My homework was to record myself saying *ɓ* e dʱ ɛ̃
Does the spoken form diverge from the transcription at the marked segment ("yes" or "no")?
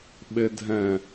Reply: no